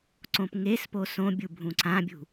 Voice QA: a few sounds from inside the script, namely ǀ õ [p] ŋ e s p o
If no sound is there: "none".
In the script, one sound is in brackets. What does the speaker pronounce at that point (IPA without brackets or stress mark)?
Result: p